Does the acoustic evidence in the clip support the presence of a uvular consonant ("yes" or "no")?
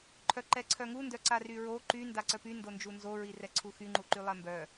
no